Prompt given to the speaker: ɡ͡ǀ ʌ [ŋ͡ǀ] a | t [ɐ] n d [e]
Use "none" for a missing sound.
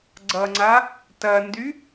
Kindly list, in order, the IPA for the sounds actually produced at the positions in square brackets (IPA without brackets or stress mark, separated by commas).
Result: ŋ͡ǀ, ɐ, y